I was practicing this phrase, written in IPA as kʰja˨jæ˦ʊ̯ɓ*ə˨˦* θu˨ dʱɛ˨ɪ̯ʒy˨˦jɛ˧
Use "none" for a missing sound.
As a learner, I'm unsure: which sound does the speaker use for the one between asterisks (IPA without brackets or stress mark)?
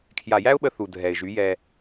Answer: ə˧